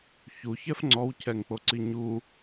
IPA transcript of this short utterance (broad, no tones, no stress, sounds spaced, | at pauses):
ç u ç ɛ f ŋ͡ǀ ɔ w cʰ ɛ ŋ k͡p o ǀ i ɲ u